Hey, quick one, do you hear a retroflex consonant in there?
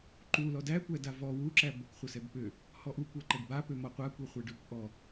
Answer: yes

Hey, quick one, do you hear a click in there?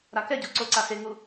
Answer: yes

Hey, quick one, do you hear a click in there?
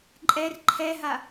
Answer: yes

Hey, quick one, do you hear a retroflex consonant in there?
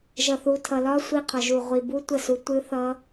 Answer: no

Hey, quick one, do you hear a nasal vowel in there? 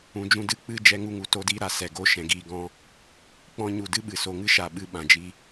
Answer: yes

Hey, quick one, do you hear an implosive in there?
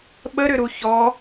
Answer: yes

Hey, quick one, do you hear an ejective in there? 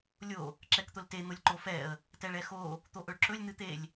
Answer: no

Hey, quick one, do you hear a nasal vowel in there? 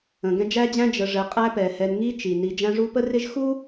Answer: yes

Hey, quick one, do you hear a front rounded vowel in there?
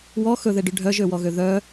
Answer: yes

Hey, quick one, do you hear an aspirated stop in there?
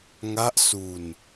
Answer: no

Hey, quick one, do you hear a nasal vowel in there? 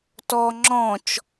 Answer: yes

